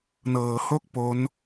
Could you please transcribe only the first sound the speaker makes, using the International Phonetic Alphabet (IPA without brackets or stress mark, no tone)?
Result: n